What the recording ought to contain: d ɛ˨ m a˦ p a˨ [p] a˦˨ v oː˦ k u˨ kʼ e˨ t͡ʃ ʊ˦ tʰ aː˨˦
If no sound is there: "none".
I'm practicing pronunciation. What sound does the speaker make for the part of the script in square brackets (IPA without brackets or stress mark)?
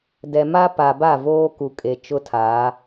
b